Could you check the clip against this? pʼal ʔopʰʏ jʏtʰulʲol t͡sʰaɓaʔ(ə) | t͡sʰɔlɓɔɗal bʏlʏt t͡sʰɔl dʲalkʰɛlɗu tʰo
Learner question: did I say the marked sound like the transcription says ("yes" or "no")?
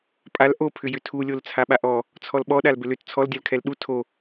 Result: no